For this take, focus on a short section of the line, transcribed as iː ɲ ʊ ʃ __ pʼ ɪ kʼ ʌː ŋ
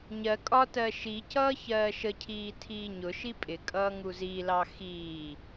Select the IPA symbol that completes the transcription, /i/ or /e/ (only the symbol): i